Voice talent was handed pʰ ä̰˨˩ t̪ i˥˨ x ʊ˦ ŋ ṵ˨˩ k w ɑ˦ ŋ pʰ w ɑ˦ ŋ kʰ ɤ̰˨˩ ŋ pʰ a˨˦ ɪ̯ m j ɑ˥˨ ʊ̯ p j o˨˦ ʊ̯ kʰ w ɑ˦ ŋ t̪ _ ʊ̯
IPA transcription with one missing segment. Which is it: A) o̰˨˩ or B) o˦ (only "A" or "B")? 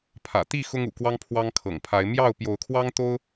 B